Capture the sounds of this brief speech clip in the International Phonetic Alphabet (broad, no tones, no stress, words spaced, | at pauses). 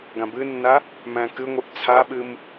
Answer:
ɡãbɨnːa | mæ̃kɨŋʷɨʔ t͡sʰaɓɨm